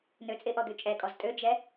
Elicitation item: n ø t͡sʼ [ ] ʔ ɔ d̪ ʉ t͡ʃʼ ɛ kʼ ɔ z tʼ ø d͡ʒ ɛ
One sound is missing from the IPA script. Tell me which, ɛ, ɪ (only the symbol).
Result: ɪ